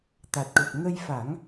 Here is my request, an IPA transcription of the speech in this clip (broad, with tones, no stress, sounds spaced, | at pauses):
t̪ a˨˩ t̚ ʈ o˨˩ p̚ ŋ ə˧ j f a˨˩˦ ŋ